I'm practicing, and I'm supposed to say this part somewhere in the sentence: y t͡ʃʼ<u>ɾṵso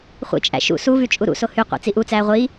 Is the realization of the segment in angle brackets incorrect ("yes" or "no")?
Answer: no